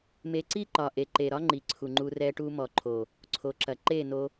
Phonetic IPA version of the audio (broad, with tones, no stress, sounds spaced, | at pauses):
m e˧ ǀ i˦ ǃ ɒ˨ ʔ e˨ ǃ e˨ ɾ ɒ˦ ŋ͡ǃ i˨ ǀʰ u˨ ŋ͡ǃ u˧ r ɛ˧ ʈ u˧ m ɔ˨ ǃʰ o˨ | ǀʰ o˨ ǁ ɐ˨ ǃ e˦˨ n o˧